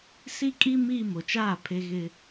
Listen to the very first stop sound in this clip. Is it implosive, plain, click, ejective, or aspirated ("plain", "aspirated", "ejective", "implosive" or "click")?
ejective